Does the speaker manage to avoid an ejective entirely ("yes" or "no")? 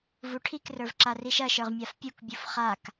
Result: yes